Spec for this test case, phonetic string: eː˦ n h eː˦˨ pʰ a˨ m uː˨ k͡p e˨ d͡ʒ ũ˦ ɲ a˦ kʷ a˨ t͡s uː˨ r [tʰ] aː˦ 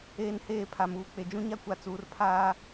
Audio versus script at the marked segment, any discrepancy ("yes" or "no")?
yes